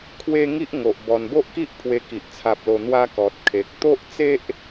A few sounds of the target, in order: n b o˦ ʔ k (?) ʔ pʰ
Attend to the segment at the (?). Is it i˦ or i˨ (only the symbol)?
i˦